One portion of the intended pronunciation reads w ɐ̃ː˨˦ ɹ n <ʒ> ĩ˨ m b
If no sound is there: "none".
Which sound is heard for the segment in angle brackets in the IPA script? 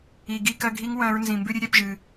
z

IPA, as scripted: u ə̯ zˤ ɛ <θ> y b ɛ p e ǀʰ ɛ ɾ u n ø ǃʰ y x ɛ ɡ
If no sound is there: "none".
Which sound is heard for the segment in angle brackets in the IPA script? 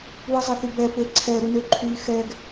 θ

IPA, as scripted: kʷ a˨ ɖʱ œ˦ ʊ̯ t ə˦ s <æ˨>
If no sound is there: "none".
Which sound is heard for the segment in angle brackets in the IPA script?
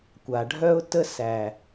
æ˨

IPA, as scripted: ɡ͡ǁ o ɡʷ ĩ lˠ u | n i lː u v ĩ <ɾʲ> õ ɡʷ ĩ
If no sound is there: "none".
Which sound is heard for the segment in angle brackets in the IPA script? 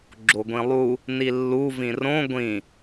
r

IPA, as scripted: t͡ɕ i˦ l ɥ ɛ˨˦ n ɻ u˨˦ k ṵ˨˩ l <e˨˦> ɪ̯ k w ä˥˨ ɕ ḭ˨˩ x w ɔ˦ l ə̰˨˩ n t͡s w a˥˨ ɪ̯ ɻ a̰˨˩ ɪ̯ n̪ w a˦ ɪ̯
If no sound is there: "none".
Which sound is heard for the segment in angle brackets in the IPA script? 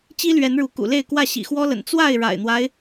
e˥˨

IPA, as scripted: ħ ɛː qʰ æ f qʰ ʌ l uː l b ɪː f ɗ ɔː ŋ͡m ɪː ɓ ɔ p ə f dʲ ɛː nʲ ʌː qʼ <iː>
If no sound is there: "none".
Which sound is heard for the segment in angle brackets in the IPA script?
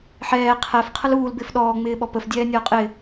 ɪː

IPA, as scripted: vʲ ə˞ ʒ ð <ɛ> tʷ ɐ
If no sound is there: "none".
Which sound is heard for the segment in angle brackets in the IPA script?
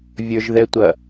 ɛ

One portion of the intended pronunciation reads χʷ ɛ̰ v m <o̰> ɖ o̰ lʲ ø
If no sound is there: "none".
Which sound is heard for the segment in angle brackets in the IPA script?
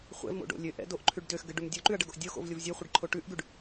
o̰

